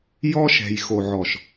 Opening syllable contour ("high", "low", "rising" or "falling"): high